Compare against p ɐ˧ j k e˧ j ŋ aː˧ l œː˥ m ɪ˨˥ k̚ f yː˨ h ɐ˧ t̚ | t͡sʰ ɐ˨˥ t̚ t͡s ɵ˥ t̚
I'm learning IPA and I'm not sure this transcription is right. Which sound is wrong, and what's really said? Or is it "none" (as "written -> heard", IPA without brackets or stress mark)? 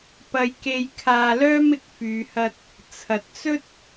ŋ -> kʰ